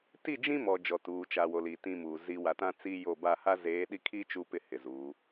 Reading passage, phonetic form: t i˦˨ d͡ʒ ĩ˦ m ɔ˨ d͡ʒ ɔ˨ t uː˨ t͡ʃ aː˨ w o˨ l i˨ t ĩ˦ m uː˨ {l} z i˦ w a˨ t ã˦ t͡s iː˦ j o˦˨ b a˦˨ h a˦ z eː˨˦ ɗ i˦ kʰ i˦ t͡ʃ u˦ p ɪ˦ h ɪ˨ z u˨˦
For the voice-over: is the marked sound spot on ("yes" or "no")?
no